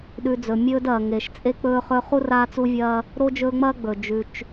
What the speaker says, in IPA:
ɗʉ˨ d͡zɵ˩ mʲɵː˦dɐː˩ ŋe˩ʃ t͡sʼe˦ k͡pɵː˦χɵː˦ χu˥raː˦t͡su˦vʲɐː˦ | ɾo˥d͡ʒɵː˦ŋ͡mɐː˥ ɡ͡bɵ˩ d͡ʒʉ˨t͡ʃ

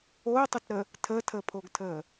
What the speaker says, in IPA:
otˤʊtɾə | tʰəːtʰəːpʰoɡtʰəː

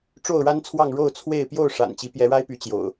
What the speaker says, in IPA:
ʈ͡ʂo˥˨ʊ̯ɻa˦nt͡sʰwɑ˥˨ŋ ɻo˥˨ʊ̯t͡sʰwe˥˨ɪ̯ pjo˥˨ʊ̯ ʂa̰˨˩nt͡ɕi˨˦ pjɛ˨˦ɻa˦ɪ̯py˨˦ t͡ɕjo̰˨˩ʊ̯

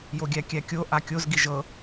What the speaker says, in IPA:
joɡʲækʲækʲo ʔakʲoz ɡiʒɤ

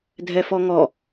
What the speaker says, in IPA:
dʱɛfɔŋɔ

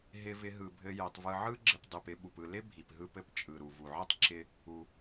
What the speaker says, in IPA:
ɦɪ˨vɪ˨ɦɯ˩bʱɘ˨ jɘ˩tˤvɯ˨ʕɯ˥ɡ͡ǁɪ˨p dˤi˩pɪ˦ ɓu˩pɯ˨ lɪ˥ bʱi˩pɦɯ˦pɘ˦p t͡ʃʼɯ˩ɾu˩vu˩ʕɯ˥tˤ ǁɪ˦ | u˩

